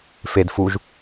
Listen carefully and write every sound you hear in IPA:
f e d f u ʒ

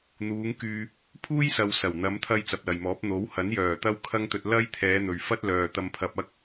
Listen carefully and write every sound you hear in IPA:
n̪ uː˨˧ ŋ k yː˧ | pʰ uː˥ j s ɐ˨ w s ɐ˨˩ w n̪ ɐ˨˧ m t̪ʰ ɐ˧ j t͡s ɐ˨ p̚ l ɐ˨ j m ɔː˨˥ p̚ n̪ o˨˥ w h ɐ˨˥ n j œː˨˩ t̪ ɐ˥ w kʰ ɐ˥ ŋ t̪ ɵ˧ t̚ l ɐ˥ j t̪ʰ ɛː˨˧ n̪ ɵ˨ ɥ f ɐ˥ t̚ l œː˨ t̪ ɐ˧ m pʰ ɐ˧ p̚ ɐ˥ k̚

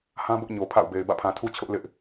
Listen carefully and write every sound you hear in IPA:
h ã˦ b ʊ˦ ʔ ɲ o˨ pʰ a̰˦˨ ʊ̯ b e˨ ɪ̯ b ä̰˦˨ pʰ ã˨ tʰ u˦ t͡ɕʰ ʊ˦ ʔ l ɪ˦ ʔ

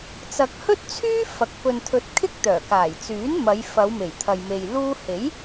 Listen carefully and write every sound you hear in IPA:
t͡s ɐ˨ k̚ h ɵ˥ t̚ t͡sʰ yː˥ f ɐ˨ k̚ p ɵ˨ n t̪ʰ ɵ˨˥ t̚ kʰ ɪ˥ k̚ t̪ œː˨˩ k aː˨˩ j t͡s yː˨˥ n m ɐ˨˧ j f ɐ˨˧ w m e˨˩ j t̪ʰ ɐ˨ j m e˨ j l uː˧ h e˨˥ j

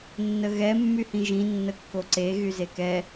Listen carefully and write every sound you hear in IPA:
nː ə ɣ ɛ mː y h ĩ ʒ ĩ nː ə kː o ǀ e ɣ y z e k ɛ

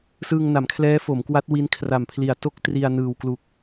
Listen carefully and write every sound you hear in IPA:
s ɯː˧ ŋ n a˩˦ m kʰ l ɛː˦˥ f o˩˦ m k w a˦˥ t̚ w i˦˥ n kʰ r a˨˩ m pʰ l i˨˩ a̯ t o˥˩ k̚ t r i˧ a̯ n ɯː˨˩ w k l u˨˩ k̚

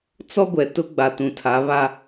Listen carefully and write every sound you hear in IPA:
t͡s ɔ˦ ɡʷ ɛ˨ t ʊ˦ ɡ͡b a˨ t ũ˨ tʰ a˨˦ β a˦

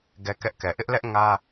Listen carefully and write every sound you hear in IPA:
ɡ ɛ˦ k ɛ˦ ʔ k ɛ˨ ʔ ɪ˦ ʔ l ɛ˦ ʔ ŋ ä˦

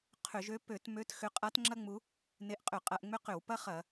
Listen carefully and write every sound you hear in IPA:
qʰ ʏ˧˩˧ ʒ ø˥ p ø˧˩˧ t m ø˧˥ t x ʏ˧˥ qʼ a˧˥ t ŋ͡ǁ ɐ˥ ŋ͡m u˧˥ | n e˧˥ ʔ qʼ ʏ˧˩˧ qʼ ɐ˧˩˧ ʔ ŋ͡m ʏ˥ q ʏ˧˩˧ w p ɐ˥ χ ɐ˧˩˧

